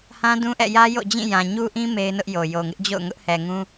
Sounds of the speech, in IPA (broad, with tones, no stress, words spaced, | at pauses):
hã˦dũ˦ʔɛ̰˦˨ jä˦jo̰˦˨ d͡ʑĩ˦˨jã˨ ɲu˦ʔĩ˦ me˦ɪ̯nʊ˦ʔjo˨ jo˨ŋɪ˦ʔd͡ʑo̰˦˨ʊ̯ ŋʊ˦ʔhɛ˨ŋũ˦